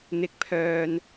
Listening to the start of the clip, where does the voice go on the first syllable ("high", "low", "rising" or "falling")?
low